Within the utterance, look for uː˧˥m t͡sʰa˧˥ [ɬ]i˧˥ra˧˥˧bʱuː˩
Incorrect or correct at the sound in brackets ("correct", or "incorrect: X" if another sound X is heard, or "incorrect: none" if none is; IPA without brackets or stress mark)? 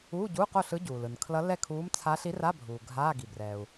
correct